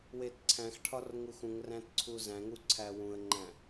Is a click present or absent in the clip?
present